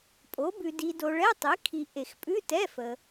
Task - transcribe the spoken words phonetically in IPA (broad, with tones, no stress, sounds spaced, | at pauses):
pʼ o˩˥ b ʉ˨ d i˨ d o˨ ɭ ɛ˧˥˧ tˤ i˩˥ kʰ i˨ ʔ e˨˩˦ x pʼ ʉ˧˥˧ t ɛ˧˥˧ f əː˨